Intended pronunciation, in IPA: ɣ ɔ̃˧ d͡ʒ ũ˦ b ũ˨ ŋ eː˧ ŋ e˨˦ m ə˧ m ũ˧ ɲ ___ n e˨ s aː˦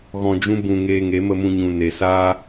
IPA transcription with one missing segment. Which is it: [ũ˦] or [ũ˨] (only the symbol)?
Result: ũ˨